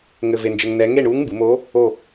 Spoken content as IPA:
ŋɘ˧ve˧nd͡ʒɘ˧ŋnɛ˧˥ ŋe˥˨ɳuː˧˥ŋmbɨ˩˧moː˧˥ | o˥˨

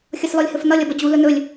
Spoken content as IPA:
xʲʌslɔlʲhɵfnʌlʲ ʌbʌd͡ʑu lɵnɵlʲ

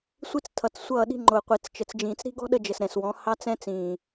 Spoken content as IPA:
sʷi˦t͡stʰʌ˨t͡ssʷʌː˦˨ɗi̤˦ ŋ͡ǃʊː˨qʷi˨t͡st͡ʃə˨t͡sd͡ʒĩː˨t͡s ɾi̤˦ɡɔ̤˦ ɗə˦d͡ʒə˨sɾɛ̃˨swɔ̃˨˦ hɑ˦t͡sɛ̃˦t͡sĩː˨

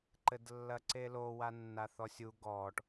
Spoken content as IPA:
ǃɘdlːɐǀelo wanːaθɔsʲu ɡɔːʈ

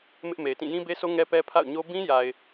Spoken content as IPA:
mɪ˦ʔme˨ɪ̯tĩ˦˨ jĩ˦be˦sʰo˦ ŋɛ˦pɛ˦pʰa̰˦˨ʊ̯ɲo˦ bĩ˦ja˨ɪ̯

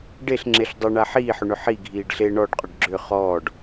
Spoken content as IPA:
ɖeɬ ŋ͡ǁeɬdˤɘɳa ħiːħʏɳʏ ħi ɡʱiːɖɬe ɳɔɖqʼʏɖ ɡ͡ǁʏ χɔːɖ

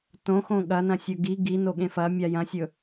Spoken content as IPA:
tõxõ ɠɐnɐ̃sʲɵ ɡi ɡinoɠẽ fɐmʲa jɐ̃sʲɵ

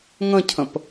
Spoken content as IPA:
ŋə̃cʰə̃p

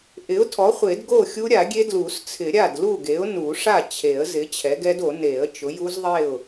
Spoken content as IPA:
ʔɪ˩˥ʊ̯tʰɔ˩˥χʷe˨˩˦d ɡo˥˩xʲu˦˥ɾʲa˨˩˦ɡʲe˦˥ dlu˨˩˦st͡sʰɪ˨˩˦ ɾʲa˥˩dlu˥˩ɡe˩˥ʊ̯ nu˨˩˦ʂa˥˩t͡ɕʰe˨˩˦ə̯ zɪ˩˥ t͡ɕʰɛ˩˥ɡɛ˦˥do˨˩˦ ne˨˩˦ə̯ t͡ʃʊ˩˥ju˦˥zðˤe˥˩ʊ̯

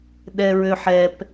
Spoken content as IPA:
ɗɛɹøħɛp

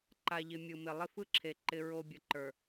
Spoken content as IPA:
ǃa˨ʎɪ˨ mʲɯ˨mɪ˨ lˠɪ˦fɯ˦ǁʰe˨ ǃɪ˦ɹo˦ bʲə˨ǃə˞˨

